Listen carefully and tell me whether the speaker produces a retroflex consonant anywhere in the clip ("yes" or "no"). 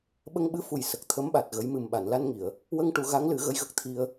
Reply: yes